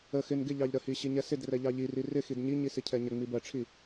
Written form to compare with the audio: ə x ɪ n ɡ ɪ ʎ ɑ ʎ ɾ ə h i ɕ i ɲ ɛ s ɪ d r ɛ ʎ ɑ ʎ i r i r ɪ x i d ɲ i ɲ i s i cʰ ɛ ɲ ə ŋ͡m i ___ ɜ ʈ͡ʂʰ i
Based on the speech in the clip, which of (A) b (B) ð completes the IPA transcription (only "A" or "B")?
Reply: A